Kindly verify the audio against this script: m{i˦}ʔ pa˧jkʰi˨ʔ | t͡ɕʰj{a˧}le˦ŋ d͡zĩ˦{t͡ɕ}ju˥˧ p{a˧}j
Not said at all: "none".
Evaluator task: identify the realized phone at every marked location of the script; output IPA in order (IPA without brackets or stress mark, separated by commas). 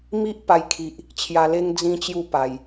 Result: i˦, a˧, t͡ɕ, a˨˩